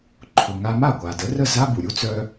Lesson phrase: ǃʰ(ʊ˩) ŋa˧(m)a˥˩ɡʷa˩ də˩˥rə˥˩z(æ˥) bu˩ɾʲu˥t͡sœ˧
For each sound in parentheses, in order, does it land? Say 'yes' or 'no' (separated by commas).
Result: yes, yes, no